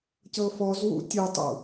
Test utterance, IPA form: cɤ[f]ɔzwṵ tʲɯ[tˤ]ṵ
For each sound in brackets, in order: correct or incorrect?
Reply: correct, correct

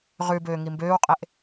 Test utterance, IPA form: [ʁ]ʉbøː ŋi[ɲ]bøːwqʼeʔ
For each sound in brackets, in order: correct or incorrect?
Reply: correct, incorrect: m

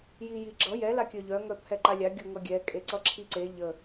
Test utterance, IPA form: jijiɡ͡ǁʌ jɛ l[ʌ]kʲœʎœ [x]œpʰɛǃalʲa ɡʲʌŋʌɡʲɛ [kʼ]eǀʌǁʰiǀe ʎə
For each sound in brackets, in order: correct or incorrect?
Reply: incorrect: a, incorrect: ŋ, correct

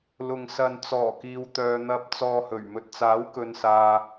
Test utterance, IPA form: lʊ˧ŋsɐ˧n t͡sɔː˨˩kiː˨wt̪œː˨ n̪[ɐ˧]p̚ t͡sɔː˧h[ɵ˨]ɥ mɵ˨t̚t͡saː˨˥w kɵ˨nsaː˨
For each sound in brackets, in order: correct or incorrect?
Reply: correct, incorrect: ɵ˨˩

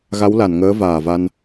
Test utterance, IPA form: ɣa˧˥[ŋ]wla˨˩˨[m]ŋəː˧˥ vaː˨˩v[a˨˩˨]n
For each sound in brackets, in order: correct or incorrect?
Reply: incorrect: none, incorrect: n, incorrect: a˧

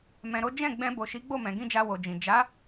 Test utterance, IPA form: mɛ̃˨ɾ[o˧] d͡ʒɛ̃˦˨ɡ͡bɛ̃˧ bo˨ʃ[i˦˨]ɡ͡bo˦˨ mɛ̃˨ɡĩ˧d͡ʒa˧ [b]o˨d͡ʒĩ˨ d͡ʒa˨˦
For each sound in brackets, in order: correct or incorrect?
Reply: incorrect: o˨˦, incorrect: i˨˦, incorrect: w

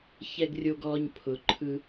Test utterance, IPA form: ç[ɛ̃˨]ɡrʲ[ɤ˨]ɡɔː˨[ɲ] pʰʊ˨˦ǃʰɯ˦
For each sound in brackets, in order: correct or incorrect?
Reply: incorrect: ɛ˨, incorrect: o˨, correct

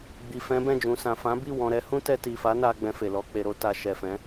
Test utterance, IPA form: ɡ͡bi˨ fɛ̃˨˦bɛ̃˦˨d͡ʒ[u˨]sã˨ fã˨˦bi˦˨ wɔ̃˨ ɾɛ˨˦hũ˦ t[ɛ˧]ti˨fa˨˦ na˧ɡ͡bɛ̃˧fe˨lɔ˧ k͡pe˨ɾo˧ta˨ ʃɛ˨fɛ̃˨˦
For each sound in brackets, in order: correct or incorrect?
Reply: incorrect: ũ˨, correct

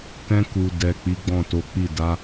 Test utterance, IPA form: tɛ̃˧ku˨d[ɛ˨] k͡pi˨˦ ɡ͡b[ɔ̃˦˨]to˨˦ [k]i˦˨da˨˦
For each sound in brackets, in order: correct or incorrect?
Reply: correct, correct, incorrect: k͡p

